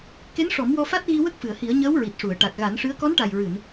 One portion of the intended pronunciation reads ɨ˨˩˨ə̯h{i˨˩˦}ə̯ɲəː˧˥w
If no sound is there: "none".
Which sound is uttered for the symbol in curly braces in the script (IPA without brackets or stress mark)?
i˨˩˦